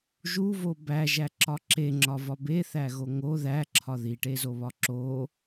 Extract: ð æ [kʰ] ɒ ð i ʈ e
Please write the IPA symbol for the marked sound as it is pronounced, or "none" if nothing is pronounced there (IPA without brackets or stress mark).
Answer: ǁʰ